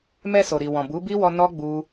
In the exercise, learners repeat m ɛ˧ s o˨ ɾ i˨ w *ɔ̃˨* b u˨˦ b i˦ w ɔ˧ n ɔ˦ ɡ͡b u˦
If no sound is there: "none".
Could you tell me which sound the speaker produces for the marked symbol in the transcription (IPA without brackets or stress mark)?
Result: ɔ̃˨